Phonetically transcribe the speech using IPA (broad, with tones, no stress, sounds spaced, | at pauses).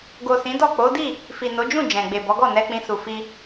ɡ o˨ s ĩ˨˦ d ɔ˦˨ k͡p o˨˦ d i˦˨ | f i˨ n o˨˦ d͡ʒ ũ˦˨ d͡ʒ ɛ̃˨ ɡ͡b e˨ b ɔ˨˦ ɡ ɔ˦˨ n ɛ˧ k͡p ĩ˧ s u˨ f i˧